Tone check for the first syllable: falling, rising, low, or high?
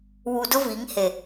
low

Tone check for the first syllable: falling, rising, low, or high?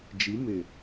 rising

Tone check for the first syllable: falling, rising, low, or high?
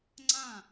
falling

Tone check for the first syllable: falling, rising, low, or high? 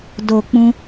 low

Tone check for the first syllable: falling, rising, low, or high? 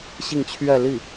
falling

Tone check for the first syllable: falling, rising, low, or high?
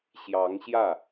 rising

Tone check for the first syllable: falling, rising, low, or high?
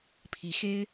rising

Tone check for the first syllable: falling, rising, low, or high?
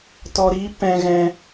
low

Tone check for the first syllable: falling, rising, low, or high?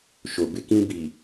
low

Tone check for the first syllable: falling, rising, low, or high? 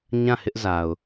falling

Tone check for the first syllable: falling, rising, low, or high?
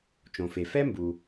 low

